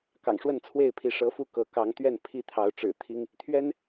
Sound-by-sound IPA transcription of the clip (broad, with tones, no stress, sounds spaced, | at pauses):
k ɑ̰˨˩ ŋ ʂ w ə˥˨ n t͡sʰ w e˥˨ ɪ̯ pʰ i˨˦ ʂ ɤ˨˦ f u˥˨ k ɤ˨˦ k ɑ˨˦ ŋ t̪ ɥ ɛ˥˨ n pʰ i˥˨ t̪ʰ ɑ˨˦ ʊ̯ ʈ͡ʂ ɻ̩˨˩ t̪ʰ i˦ ŋ | t̪ʰ ɥ ɛ˦ n